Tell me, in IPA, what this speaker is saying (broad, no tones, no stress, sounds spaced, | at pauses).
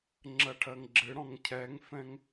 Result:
ŋ͡ǁ ɜ ʈʰ ɜ ŋ ɡ͡ǁ ɨ ɽ ɔ̃ ŋ cʰ ɛ ŋ f ɛ̃ ŋ